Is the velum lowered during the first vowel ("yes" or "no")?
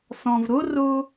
yes